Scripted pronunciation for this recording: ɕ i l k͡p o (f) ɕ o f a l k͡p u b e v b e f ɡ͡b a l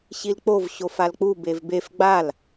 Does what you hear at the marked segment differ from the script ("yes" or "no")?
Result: yes